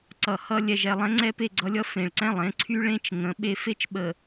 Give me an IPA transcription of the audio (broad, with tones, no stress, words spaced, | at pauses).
ǀʌ˨hʌ˦ lʲɛ˨ʒɛ˨lˠɛ̃˦ ŋ͡ǀɛ˦pe˦˨ɡ͡ǀʌ˦lʲʌ˦ fẽ˨ɭǀɛ̃˦˨lˠẽ˨˦ ǀʰy˦ɭẽ˦t͡ʃ ŋə̃˨˦ ɓe˦ fe˦t͡ʃɓə˨